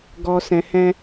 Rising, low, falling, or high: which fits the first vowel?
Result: low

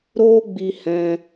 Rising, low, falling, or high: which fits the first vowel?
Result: high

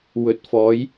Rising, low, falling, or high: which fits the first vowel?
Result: low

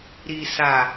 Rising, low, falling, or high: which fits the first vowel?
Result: low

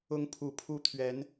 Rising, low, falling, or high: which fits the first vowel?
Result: rising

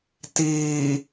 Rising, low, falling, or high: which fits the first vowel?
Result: low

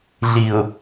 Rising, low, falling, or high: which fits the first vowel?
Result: low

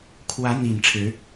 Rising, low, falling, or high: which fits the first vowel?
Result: rising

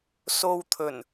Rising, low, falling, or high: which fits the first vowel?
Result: low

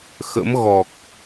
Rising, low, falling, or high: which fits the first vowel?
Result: rising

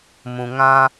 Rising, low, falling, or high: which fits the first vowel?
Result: low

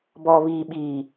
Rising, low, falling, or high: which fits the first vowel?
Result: low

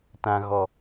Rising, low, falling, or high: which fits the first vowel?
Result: low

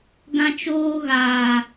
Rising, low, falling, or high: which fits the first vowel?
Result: high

